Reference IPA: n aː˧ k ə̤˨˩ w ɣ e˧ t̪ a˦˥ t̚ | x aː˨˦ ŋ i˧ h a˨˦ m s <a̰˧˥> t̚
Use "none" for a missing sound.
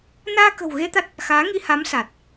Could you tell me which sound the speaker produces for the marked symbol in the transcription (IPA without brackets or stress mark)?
a˨˩